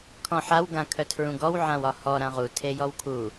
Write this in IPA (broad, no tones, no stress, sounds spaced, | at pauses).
kʰ ɔ̃ ħ a w ɡ ã kʰ œ tʰ ɹ ũ ɡ ɔ w ʕ ã w ɒ h ɔ ɾ ã ʁ u tʰ e j ɔ w kʰ u